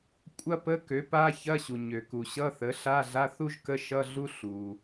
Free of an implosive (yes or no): yes